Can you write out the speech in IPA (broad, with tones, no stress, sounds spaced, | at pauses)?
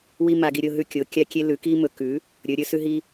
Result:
w i˧ m a˧ ɡ i˧ ɾʲ o˧ ɦ ʉ˧ kʲ o˩˧ kʲ a˧ kʲ e˧ l ʉ˩˧ k i˧ m ɵ˩˧ k ʉ˩˧ | ɾʲ ɵ˩˧ ɾʲ ɵ˩˧ s ʉ˧ ɦ i˧